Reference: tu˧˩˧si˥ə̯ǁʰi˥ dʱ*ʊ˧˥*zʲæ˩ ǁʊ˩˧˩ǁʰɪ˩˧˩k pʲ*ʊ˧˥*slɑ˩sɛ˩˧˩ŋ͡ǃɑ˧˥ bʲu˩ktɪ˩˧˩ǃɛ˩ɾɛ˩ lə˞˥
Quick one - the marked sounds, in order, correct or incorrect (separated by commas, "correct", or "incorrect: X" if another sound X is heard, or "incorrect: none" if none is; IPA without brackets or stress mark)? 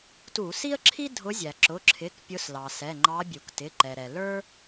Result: correct, correct